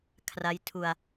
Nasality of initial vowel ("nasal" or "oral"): oral